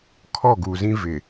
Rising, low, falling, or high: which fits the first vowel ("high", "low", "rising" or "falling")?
falling